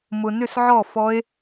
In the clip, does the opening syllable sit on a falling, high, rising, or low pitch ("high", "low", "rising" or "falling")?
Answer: low